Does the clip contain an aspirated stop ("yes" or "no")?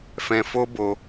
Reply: no